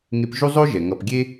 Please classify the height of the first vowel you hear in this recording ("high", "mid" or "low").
mid